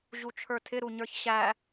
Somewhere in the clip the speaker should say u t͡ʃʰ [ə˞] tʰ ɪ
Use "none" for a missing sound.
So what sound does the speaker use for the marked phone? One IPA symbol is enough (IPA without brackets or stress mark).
ə˞